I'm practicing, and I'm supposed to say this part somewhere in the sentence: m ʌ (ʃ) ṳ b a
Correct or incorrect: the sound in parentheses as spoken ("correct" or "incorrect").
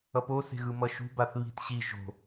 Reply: correct